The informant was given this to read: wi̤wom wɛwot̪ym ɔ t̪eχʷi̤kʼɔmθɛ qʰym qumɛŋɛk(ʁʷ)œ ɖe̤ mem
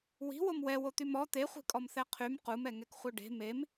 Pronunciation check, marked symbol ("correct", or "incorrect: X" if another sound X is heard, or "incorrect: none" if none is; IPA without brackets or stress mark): incorrect: χʷ